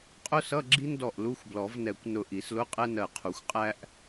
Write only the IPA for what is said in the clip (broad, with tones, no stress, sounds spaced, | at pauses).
qʼ ʊ˥ s ʌ˧˥˧ ɡ͡ǁ i˥ n d ɔ˧˩ ʔ l u˧˥˧ xʷ b l ɔ˨˩˦ v n ɛ˨˩˦ kʷ n ʊ˧˩ ʔ i˨˩˦ s l ʊ˧˥˧ qʼ ɛ˥ n ɜ˧˩ qʰ u˨˩˦ xʷ qʼ æ˥ ʔ